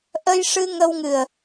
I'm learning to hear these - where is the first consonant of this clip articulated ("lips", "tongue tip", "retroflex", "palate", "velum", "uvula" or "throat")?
throat